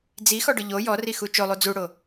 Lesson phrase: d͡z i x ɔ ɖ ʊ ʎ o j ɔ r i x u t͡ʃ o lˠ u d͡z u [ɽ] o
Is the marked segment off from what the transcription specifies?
no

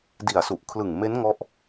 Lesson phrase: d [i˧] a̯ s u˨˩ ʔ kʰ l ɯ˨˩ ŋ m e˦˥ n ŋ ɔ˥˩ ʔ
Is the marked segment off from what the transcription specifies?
yes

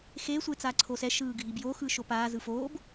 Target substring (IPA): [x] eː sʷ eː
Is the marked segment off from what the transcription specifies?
no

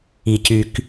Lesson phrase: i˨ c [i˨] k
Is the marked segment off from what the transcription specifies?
yes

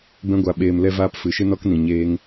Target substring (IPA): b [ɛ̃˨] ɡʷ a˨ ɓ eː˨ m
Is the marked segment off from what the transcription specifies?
yes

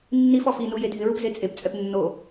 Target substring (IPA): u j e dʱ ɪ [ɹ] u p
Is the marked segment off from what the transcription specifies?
no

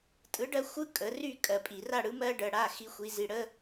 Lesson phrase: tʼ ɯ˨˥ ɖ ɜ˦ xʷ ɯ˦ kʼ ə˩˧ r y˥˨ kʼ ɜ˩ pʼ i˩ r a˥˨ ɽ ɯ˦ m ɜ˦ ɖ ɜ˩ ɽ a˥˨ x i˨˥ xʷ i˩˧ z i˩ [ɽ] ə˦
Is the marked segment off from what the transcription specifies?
no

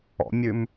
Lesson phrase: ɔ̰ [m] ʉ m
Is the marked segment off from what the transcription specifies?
yes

